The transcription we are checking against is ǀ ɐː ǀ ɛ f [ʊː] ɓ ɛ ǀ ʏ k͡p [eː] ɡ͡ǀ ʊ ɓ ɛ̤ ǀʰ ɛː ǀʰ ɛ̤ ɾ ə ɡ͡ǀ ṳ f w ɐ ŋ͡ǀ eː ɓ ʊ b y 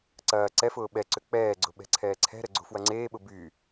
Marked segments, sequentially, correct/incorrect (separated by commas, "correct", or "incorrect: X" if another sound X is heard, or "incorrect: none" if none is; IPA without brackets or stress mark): correct, incorrect: ɛː